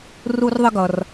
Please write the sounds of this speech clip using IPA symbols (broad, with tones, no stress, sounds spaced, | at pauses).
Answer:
r u˥ r ðˤ ə˥ ɡ ʌ˩ r